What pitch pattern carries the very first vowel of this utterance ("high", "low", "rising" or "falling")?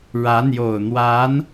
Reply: rising